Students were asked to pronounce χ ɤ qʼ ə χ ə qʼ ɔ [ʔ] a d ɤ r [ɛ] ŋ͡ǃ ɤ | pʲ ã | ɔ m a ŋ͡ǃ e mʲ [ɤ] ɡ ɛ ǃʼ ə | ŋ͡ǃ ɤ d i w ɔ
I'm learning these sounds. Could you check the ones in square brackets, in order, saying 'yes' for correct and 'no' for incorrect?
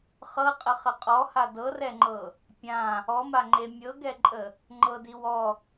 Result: no, yes, yes

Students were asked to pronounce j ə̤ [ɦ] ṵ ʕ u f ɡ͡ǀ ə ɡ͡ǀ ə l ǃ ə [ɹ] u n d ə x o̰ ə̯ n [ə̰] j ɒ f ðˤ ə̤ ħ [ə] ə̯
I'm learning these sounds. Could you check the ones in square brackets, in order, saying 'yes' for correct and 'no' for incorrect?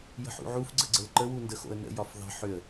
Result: no, no, yes, no

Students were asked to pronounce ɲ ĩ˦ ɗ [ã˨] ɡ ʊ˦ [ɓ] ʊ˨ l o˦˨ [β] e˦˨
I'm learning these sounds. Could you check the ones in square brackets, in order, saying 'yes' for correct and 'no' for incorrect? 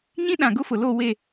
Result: yes, no, no

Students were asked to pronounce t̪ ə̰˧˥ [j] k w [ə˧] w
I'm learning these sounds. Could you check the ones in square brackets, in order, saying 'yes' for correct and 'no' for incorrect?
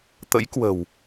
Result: yes, no

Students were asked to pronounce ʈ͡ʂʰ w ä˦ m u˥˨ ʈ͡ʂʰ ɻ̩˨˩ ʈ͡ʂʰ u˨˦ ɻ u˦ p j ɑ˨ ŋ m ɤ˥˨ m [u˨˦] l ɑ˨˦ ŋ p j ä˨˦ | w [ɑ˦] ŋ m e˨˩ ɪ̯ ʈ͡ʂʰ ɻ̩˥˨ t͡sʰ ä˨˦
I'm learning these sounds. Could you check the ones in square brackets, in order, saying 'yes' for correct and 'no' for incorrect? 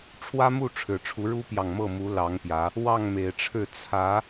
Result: yes, no

